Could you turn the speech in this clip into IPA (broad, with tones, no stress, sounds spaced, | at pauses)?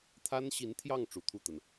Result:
t̪ʰ a˥ n ɕ i˧˥ n t̪ʰ j ɑ˥˩ ŋ ʈ͡ʂ u˧˥ t̪ʰ u˥˩ t̪ ə˩ n